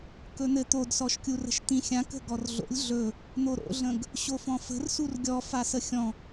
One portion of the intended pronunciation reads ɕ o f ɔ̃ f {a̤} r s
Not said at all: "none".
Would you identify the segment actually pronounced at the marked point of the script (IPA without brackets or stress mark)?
ə̤